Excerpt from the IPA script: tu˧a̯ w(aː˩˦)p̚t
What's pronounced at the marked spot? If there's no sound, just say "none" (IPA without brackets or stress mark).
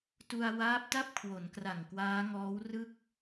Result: aː˦˥